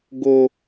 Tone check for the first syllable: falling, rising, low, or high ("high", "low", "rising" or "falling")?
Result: low